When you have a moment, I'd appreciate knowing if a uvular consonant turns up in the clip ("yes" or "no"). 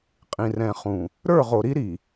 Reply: yes